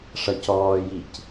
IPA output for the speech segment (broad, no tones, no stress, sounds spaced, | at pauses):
ʂ ʌ c ɔː j i c